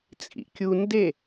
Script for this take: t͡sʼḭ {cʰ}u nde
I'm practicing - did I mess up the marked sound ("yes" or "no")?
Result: yes